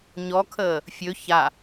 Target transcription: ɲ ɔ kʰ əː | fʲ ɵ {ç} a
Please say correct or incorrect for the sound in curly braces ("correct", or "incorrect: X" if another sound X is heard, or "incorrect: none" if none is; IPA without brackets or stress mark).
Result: correct